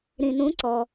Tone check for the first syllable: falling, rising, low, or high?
low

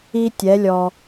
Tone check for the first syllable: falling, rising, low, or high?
high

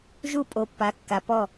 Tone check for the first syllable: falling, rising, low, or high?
falling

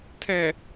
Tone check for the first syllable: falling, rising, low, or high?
low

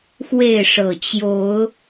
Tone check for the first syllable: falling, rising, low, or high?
falling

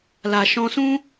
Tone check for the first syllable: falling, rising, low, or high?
low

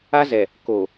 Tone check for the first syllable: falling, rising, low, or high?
high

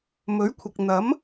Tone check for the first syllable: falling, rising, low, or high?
rising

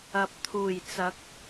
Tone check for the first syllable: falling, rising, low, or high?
low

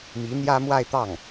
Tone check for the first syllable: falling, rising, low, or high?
rising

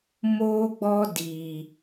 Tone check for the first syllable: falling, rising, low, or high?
high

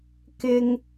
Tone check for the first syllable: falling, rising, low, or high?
high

